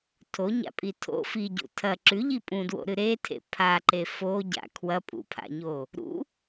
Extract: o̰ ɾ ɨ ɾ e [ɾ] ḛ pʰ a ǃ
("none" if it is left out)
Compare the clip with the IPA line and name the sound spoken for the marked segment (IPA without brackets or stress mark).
tʰ